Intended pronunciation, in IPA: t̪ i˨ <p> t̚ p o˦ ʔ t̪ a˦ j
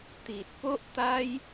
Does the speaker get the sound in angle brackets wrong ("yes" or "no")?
yes